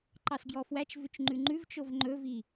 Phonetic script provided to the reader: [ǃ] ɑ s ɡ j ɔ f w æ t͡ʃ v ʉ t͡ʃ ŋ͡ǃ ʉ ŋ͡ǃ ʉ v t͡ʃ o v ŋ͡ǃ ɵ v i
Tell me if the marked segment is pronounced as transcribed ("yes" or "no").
yes